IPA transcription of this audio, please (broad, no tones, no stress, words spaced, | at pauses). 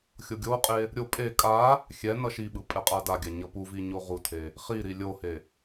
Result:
xʲoɡʲoqʼe | ɾʲo pʼe kʼa | xʲɛ nʌʃiɓɯ pʼɛqʼadaɡʲa ɲʌpuvi ɲoʁutʰe | χiɾi lʲohe